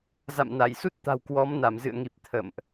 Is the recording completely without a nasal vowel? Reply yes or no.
yes